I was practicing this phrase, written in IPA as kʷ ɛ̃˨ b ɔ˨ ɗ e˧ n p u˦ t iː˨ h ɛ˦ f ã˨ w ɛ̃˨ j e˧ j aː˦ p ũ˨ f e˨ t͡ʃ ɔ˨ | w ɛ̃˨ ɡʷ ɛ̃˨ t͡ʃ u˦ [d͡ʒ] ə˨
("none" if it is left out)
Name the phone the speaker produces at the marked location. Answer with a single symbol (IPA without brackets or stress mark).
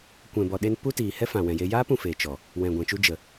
d͡ʒ